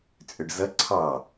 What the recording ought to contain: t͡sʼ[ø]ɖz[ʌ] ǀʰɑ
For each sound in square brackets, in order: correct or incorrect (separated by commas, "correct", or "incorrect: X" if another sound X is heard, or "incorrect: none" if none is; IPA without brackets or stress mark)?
correct, correct